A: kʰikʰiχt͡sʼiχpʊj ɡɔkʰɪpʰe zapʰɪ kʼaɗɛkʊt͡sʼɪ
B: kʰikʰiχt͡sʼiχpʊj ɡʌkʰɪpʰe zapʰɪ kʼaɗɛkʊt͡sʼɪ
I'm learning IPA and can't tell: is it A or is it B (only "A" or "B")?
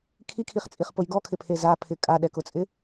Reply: A